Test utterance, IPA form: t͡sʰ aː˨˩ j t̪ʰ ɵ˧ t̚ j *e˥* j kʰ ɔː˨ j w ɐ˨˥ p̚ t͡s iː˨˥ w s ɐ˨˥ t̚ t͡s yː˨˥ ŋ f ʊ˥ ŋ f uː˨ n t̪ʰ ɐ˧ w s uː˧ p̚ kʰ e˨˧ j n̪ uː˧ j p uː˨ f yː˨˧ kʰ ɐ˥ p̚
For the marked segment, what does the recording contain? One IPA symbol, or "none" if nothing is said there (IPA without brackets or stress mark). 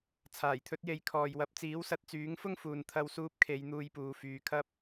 e˨˧